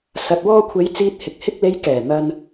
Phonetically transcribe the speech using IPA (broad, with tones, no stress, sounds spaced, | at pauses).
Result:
s ɐ˨ t̚ w ɔː˧ kʷʰ e˨˧ j t͡s iː˧ t̚ h ɪ˨ k̚ h ɪ˧ k̚ l e˨˧ j k ɛː˨˩ n̪ ɐ˧ n